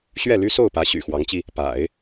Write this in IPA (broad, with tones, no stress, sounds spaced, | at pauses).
ɕ ɥ ɛ˥˩ l y˥ s o˥˩ ʊ̯ p ä˧˥ ɕ y̰˨˩ x w ɑ˧˥ ŋ t͡ɕ i˧ | p a̰˨˩˦ ɪ̯